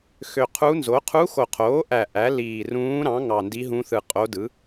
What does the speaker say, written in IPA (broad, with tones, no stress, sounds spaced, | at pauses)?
x ø˨˩ qʰ u˧˥ n z o˩˥ qʰ u˧˥ x o˨˩ qʰ oː˩˥ ʔ æ˨˩ ʔ æ˩˥ l iː˨˩ r ũː˧˥ ɾ ɑ̃˩˥ ŋ ɑ˨˩ n d i˧˥ ɦ ũ˧˥ θ ɯ˨˩ qʼ o˧˥ d ɯ˩˥